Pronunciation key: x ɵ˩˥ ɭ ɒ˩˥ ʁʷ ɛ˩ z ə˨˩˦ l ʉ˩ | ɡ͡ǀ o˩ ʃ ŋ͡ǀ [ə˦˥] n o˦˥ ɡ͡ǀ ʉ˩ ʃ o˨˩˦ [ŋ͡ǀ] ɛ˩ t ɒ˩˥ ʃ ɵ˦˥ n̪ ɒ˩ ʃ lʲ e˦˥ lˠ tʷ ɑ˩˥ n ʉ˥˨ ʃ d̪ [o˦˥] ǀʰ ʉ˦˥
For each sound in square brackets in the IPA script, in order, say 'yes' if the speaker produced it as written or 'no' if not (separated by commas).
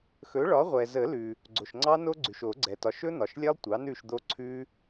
no, no, yes